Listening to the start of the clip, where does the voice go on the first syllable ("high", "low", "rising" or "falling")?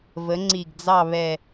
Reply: rising